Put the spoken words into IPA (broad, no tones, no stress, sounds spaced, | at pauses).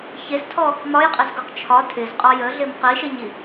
ç e z tʰ ɔ | m ɒ j qʼ ɪ z ɡ o q t͡ʃʰ ɒ tʰ ɪ z qʼ ɒ j ə ɮ ɪ m q i ʃ ɪ ɲ i